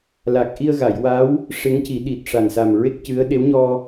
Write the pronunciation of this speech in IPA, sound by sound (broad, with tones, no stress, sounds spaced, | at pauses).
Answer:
l a˨˩ k̚ ʔ i˧ ə̯ ɣ a˨˩˨ j w a˧˥ w | ʂ e˧˥ ŋ c i˨˩˦ ɗ i˨˩ t̚ ʂ a˨˩ n s a˨˩ m ɹ e˦˥ k̚ c ɨ˧˥ ə̯ ɗ e˧˥ w ɲ ɔ˧